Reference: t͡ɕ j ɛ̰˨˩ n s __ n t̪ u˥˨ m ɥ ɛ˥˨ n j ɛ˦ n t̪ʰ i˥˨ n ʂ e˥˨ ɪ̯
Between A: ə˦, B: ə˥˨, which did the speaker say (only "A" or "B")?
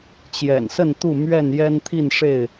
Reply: B